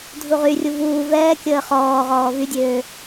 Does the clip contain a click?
no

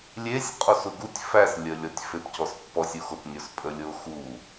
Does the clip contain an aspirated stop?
no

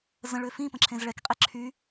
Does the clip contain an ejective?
yes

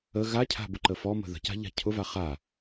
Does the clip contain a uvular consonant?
yes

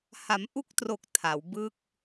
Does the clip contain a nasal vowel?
no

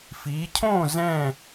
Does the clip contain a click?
no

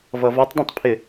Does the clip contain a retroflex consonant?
no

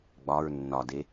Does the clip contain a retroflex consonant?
no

